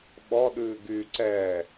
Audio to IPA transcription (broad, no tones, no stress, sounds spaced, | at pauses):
ɓ ɔ ɗ ʉː ɡ y ǀ ɛː